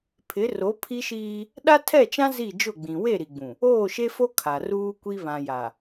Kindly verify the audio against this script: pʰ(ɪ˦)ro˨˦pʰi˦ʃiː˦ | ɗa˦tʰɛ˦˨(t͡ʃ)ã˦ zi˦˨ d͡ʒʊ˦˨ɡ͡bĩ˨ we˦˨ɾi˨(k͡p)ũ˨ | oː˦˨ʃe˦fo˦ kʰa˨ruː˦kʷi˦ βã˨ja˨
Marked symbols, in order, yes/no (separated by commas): no, yes, no